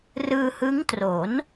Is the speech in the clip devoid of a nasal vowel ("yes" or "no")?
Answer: yes